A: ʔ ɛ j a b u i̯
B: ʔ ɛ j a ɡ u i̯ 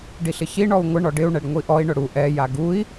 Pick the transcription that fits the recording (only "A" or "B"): B